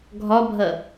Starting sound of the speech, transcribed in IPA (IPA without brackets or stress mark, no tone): ɡʱ